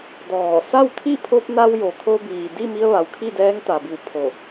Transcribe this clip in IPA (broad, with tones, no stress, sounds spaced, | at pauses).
d ɔː˧˩ s a˥˨ w t̪ʰ i˥˨ pʰ o˧ p̚ n a˧ w j o˩ kʰ o˧ b iː˩ d i˥˨ m i˧ ə̯ ʋ a˩ w kʰ i˥˨ d ɛː˧˥ ŋ t̪ a˩ b i˧˩ w pʰ o˧˩